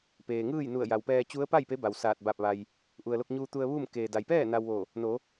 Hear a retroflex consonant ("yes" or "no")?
no